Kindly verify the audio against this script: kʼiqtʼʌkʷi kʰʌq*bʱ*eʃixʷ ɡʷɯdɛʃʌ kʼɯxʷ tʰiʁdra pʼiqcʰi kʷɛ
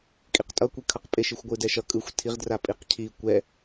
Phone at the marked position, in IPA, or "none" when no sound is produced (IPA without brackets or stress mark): pʼ